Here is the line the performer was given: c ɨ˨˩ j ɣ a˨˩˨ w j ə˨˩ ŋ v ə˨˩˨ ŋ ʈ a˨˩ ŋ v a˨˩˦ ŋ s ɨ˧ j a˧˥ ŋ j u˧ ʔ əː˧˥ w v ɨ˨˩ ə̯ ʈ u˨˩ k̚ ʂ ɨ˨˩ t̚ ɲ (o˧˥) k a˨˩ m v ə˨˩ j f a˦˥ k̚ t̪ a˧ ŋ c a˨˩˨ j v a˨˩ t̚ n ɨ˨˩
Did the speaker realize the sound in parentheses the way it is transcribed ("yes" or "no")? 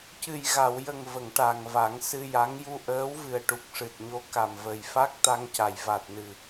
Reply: yes